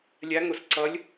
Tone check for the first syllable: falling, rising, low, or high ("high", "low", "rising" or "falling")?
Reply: rising